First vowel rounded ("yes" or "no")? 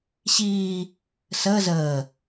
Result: no